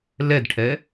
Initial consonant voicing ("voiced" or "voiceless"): voiced